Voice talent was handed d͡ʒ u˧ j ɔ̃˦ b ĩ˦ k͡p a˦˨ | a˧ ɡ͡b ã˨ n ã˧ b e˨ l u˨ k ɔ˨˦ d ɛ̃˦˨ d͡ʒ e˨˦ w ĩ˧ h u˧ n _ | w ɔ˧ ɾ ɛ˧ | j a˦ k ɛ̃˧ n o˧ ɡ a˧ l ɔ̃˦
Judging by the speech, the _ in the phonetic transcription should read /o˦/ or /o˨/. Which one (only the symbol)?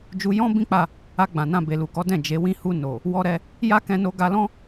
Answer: o˨